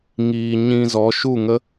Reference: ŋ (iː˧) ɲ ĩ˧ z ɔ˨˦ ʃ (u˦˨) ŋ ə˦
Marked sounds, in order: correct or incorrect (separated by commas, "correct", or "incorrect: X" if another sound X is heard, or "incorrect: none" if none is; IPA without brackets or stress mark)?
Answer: correct, correct